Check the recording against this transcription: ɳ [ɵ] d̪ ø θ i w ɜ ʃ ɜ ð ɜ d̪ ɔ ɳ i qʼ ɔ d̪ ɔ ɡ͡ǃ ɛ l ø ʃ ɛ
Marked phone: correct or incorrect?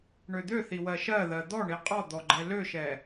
incorrect